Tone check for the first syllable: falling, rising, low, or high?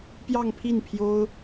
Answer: falling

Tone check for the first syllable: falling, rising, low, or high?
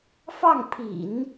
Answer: falling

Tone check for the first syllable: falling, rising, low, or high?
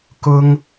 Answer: high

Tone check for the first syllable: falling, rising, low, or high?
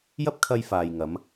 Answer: high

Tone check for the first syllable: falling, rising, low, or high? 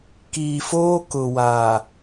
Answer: low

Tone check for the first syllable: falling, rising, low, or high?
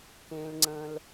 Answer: low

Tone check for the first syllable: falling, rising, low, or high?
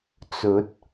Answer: rising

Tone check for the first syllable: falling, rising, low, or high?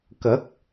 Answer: rising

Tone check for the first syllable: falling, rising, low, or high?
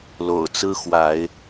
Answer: low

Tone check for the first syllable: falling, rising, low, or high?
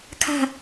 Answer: falling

